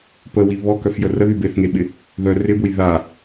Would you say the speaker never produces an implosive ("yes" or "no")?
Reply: no